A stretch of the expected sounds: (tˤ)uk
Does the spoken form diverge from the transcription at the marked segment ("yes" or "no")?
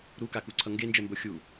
yes